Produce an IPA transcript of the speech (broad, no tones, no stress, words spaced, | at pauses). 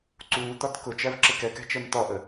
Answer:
ǀuːt̪ɒt kʊt͡ʃæv ǁɪkɛkæ̤ t͡ʃɜmt̪ɒʔə